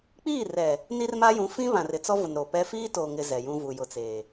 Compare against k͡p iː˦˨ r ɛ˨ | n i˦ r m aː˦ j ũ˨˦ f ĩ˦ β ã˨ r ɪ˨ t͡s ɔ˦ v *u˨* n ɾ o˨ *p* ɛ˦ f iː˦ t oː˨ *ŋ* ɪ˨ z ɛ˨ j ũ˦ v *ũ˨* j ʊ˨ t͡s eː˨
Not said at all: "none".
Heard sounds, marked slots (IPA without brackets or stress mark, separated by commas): ʊ˨, p, ŋ, u˨